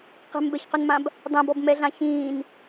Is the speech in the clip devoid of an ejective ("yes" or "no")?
yes